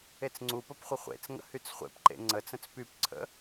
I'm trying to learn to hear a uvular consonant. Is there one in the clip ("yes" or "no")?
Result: yes